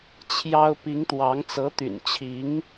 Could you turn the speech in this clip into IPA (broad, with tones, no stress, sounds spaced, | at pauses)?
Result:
t͡ɕʰ j ɑ˥ ʊ̯ p i˧˥ ŋ t̪ w ɑ˧˥ ŋ t͡s ɤ˧˥ t̪ y̰˨˩ n t͡ɕʰ i˧˥ ŋ